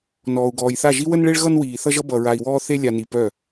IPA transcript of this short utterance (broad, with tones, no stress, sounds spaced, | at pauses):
n ɔː˨ u̯ ɡ ɔː˨ j θ a˦˨ ʒ i˦ w ə˦ n ɭ e˦ ɭ ɣ ʌ˦ n w iː˨ θ ʌ˦ ʒ ʌ˦ b ʌ˨ ɹ a˨ i̯ w ɔː˦ θ e˦ lʲ a˨ n i˨ p œ˦˨